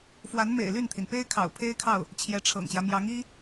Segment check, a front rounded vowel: present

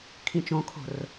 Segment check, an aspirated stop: present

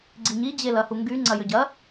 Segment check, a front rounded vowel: present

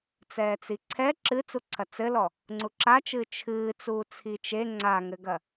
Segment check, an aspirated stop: present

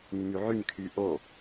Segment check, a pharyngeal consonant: present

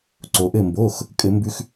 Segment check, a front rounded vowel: absent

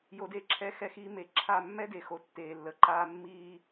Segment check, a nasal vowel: absent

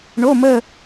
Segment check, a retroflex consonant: present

